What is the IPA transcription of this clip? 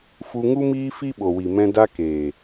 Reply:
f u˧ ŋ u˦ m iː˦ f i˦ ɓ o˨ w i˨ m ɛ̃˧ d a˧ k eː˨

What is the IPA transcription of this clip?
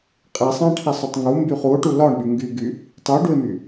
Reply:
qʼ i sˤ ã ʈʰ i sˤ ɵ tˤ ŋ u m b y χ u o̯ ʈ u l ɒ ɳ ɓ y ŋ ɡ y ɡ y | tˤ y ɖ u e̯ m y

